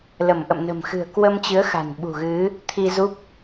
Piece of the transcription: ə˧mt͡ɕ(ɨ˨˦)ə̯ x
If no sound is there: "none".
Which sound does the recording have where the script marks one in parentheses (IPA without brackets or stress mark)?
ɨ˨˦